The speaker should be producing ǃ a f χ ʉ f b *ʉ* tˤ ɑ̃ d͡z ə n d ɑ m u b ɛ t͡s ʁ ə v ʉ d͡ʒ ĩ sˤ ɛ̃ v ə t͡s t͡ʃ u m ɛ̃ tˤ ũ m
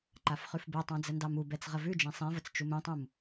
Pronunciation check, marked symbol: incorrect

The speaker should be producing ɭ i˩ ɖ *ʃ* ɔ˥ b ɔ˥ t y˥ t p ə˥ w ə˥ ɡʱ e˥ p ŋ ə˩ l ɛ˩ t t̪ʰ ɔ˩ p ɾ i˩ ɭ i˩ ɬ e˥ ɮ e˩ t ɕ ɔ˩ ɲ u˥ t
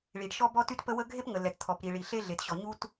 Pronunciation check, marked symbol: correct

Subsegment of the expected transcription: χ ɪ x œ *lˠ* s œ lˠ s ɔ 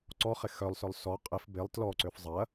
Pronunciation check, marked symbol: correct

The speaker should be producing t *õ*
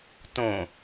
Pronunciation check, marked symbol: correct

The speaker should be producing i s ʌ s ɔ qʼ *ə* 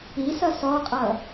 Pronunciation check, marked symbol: incorrect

